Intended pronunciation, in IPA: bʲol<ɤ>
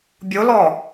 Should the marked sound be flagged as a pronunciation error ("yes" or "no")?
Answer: yes